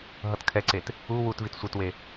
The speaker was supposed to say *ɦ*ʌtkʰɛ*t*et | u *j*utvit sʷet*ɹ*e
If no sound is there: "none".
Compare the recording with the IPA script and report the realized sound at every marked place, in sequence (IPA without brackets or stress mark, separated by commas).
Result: ɦ, ǀ, w, w